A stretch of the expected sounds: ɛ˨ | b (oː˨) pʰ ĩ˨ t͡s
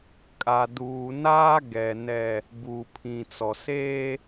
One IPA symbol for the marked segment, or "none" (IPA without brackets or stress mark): uː˨